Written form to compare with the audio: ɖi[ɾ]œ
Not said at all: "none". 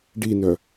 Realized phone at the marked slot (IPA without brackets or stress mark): n